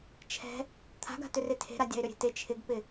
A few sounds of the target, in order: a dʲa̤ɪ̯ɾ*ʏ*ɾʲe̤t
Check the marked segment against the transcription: correct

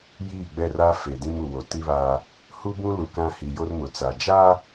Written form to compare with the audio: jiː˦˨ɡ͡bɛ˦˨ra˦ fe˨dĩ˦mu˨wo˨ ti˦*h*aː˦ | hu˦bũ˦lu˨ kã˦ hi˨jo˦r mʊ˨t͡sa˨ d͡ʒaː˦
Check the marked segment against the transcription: incorrect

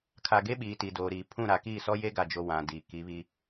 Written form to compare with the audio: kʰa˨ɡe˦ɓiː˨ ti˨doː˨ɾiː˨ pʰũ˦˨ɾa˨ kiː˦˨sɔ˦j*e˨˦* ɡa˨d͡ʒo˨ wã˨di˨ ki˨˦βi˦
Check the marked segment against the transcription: incorrect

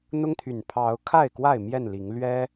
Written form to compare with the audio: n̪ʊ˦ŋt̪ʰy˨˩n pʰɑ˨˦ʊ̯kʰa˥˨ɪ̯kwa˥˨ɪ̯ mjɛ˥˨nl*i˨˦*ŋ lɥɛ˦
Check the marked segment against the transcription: correct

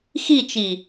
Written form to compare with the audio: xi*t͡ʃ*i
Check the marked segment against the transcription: correct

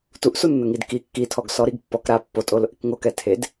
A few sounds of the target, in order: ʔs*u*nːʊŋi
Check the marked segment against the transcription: correct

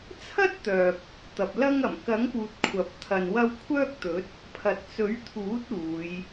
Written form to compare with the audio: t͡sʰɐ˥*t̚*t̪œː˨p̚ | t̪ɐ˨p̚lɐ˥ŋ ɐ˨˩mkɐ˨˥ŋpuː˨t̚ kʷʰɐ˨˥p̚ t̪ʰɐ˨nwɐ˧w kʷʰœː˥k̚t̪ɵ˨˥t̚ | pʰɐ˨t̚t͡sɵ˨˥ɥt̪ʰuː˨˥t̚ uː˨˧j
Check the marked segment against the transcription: correct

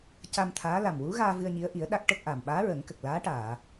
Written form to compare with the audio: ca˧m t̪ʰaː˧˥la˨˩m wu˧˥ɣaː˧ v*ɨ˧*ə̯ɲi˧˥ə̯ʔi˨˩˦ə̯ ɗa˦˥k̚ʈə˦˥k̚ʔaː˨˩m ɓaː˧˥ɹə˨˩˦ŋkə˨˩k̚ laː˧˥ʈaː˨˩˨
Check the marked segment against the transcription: correct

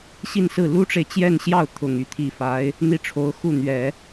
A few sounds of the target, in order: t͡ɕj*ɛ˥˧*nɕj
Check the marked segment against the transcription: correct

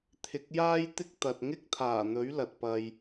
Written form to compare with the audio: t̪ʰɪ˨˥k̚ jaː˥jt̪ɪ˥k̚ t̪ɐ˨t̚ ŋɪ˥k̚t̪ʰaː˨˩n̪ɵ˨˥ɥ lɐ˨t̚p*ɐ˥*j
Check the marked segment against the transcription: incorrect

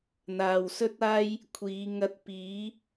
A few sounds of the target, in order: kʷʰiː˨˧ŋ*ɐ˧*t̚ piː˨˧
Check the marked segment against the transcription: correct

